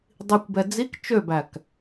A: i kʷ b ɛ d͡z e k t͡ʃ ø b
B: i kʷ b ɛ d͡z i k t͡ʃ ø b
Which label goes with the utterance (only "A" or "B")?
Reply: B